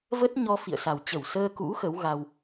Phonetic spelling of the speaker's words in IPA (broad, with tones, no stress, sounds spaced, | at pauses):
v ə˦˥ t̚ ɲ ɔ˧ f ḭ˧˨ ə̯ s a˨˩ w t͡ɕ ə˧˩ w s əː˧ k ṵ˧˥ x ə˨˦ w ɣ a˧ w